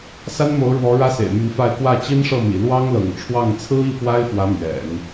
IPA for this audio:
s a˥ n m o˧˥ ʊ̯ ɻ w ɔ˧˥ ɻ ä˥ s ḛ˨˩ ɪ̯ m y˧˥ n f a˥˧ ɪ̯ k w ä˥˩ t͡ɕ i˥ n ʂ ɤ˥˩ m ḭ˨˩ l w ɑ˥ ŋ l ɤ̰˨˩ ŋ ʈ͡ʂʰ w ɑ˥˩ ŋ t͡sʰ ɹ̩˥ i˥˩ p w a˥ ɪ̯ f w ä˧˥ m ɥ ɛ̰˨˩˦ n

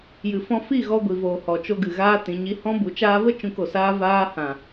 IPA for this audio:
j ɨ˨ f ɔ̃˧ f i˦˨ ɣ ɔ˧ ɡʷ i˨ v oː˨ h ɔ˨ t͡ʃ o˧ ɡ ɨ˨ ɣ aː˦ t ĩ˨˦ ɲ i˦ h ɔ̃˦ b u˨˦ t͡ʃ aː˧ v ə˦ t͡ʃ ũ˧ k o˨ s aː˦ v aː˦ h ã˨

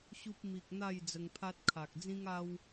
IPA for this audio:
ɕ u˦ p̚ m i˨ k̚ n̪ a˥˧ j d͡z ə˧ ŋ pʰ a˦ t̚ kʰ a˨ k̚ d͡z ĩ˦ ŋ a˦ w

